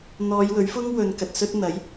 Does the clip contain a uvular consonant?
no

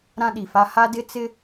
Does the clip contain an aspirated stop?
no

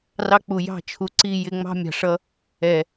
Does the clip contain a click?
yes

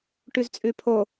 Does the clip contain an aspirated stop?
yes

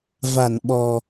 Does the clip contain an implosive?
yes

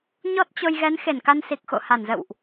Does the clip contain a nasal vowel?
no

